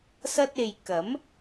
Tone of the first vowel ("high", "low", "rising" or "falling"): high